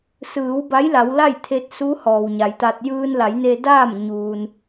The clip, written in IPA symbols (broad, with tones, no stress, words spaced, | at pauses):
sɯː˩˧wba˧˥jla˩˧w la˥˨jt̪ʰe˧t̚su˧˥ hɔː˩wɲa˩˧jt̪a˧t̚ jɯː˧nla˩˧jne˧daː˥˨m ɲuː˧n